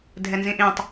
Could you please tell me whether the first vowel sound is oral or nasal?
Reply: oral